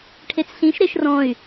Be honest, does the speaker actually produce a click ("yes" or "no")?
no